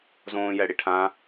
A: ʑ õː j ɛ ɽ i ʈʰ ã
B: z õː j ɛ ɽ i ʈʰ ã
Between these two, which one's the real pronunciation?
B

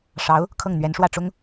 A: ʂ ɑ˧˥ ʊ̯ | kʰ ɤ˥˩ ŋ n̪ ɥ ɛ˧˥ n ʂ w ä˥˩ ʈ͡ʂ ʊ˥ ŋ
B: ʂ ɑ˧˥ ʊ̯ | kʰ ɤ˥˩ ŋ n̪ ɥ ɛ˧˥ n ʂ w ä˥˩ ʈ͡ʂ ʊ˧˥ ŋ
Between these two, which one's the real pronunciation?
A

